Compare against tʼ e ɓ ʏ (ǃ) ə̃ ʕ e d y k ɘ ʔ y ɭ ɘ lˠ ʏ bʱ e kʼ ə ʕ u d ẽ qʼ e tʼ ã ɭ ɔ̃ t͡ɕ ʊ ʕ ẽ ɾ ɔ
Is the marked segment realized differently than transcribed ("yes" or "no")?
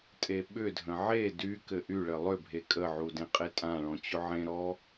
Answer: yes